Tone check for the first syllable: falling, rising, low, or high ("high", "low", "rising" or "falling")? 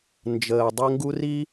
low